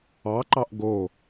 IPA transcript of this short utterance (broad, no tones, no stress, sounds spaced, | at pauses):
ɑ ǃ ɑ ʔ ɡ o